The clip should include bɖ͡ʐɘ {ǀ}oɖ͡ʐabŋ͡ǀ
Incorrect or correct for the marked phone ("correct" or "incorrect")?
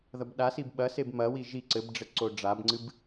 correct